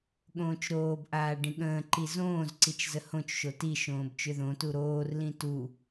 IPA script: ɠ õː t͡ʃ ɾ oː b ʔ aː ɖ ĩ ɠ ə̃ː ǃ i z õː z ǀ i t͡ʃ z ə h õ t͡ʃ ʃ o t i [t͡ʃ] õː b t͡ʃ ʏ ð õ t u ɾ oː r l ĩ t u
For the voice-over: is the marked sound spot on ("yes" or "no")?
no